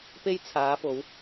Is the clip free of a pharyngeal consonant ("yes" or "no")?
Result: yes